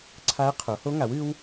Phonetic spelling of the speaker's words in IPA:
ǀʰ a˦˥ ə̯ qʰ o˩˥ h o˦˥ ŋ a˩˥ w ɨ˦˥ w

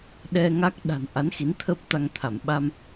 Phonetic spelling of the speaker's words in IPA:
ɗ ɛ˧ ŋ a˦˥ k̚ ɗ a̤˨˩ n ʔ a˨˦ n x i˨˦ n t̪ʰ əː˦˥ p̚ t̪ a˧ ŋ t̪ʰ a˧˩ m ɓ a˧ m

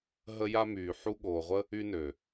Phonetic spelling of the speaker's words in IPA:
ɦ ə˧ j a˧ m yː˨ ħ u˧ ɠ oː˨ ʁʷ ə˦ | y˧ n ø˨

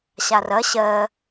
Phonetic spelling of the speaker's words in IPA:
ɕ a r ɐ ɕ ɜ

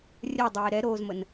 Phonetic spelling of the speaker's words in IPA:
rʲ ɜ dˤ eː ɾ ɛ ɾ oː z m ə n

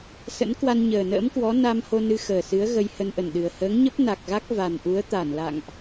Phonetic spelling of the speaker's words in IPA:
s ə̰˧˥ n k w a˧ n ɲ əː˨˩ n ə̰ː˧˥ m k w ɔ˨˦ n a˧ m h o˧ n ɨ˧ x əː˨˩ s ɨ˨˦ ə̯ ɣ ə˧ j h ə˧ n ʔ ə˧˩ n ɗ ɨ˨˩ ə̯ h əː˨˦ ŋ ɲ ə˦˥ p̚ n a˨˩ k̚ ɣ a˦˥ k̚ v a˨˩ n ʔ u˨˦ ə̯ t̪ a˧˩ n l a̰˧˨ ŋ ʔ

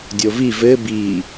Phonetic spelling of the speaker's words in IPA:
dʲ o v i v ɘ b i

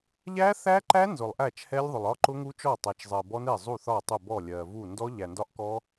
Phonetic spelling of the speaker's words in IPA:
ʎ æ˦˥ θ æ˦˥ ǃ æ˦˥ n z ʊ˨ lˠ ʔ æ˥˩ t͡ʃ h ɛ˦˥ lʲ ðˤ ʊ˨ lˠ ɒ˦˥ ǃ ʊ˦˥ ŋ u˦˥ t͡ʃ ɔ˥˩ tˤ æ˨ t͡ʃ zˤ ɜ˨ b ɔ˦˥ n ɛ˥˩ zˤ u˥˩ θ ɒ˥˩ tˤ ʊ˥˩ b ɔ˥˩ lʲ ɜ˨ v u˥˩ n d ɔ˦˥ ʎ æ˨ n d ɒ˦˥ ʔ k ɔ˦˥

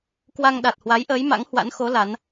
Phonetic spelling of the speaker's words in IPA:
k w a˧ ŋ ɗ a˨˩ t̚ h w a˨˦ j ʔ əː˨˦ j m a̰˧˥ ŋ h w a̰˧˥ n x o˨˦ l a˨˦ n

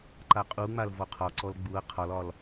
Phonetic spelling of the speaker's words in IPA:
ǃ a qʼ u ŋ͡m a l v ɔ qʰ ɒ ǀ ɔ l ɡ͡b u ɐ̯ qʰ ɒ l ɒ l

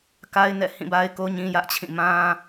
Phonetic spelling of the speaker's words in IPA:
k a˦ ɪ̯ n ɛ̰˦˨ h ĩ˦˨ b a˦ ɪ̯ k o˦ ɲ ĩ˦ j ä˦ ʔ t͡ɕʰ ĩ˦˨ m ã˦

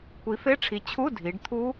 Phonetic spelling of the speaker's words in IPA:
kʷ i˩˥ f e˧˥˧ ʈ͡ʂʰ i˩˧ t͡ɕʰ u˧˥˧ dʱ i˩˧ ɖ t̪ʰ u˦˥

